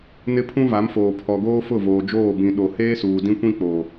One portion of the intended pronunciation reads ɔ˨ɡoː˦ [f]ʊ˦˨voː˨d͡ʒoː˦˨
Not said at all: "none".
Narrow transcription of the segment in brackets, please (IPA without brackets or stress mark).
f